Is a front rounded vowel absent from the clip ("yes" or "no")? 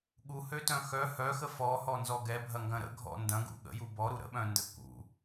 no